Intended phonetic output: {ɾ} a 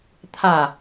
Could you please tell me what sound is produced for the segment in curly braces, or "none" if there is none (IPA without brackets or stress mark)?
t̪ʰ